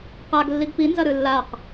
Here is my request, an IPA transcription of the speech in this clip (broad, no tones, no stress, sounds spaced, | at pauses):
q a ɡ lː i ɡ p i n z ɐ ɾ ɨ lː a q